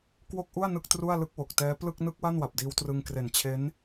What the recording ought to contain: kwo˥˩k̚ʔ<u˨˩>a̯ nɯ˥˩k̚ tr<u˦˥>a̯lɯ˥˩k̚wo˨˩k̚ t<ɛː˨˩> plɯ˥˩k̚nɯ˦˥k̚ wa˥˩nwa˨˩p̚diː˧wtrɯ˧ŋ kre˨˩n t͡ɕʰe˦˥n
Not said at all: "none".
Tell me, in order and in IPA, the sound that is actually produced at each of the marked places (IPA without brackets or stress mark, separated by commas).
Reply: u˥˩, u˥˩, ɛː˦˥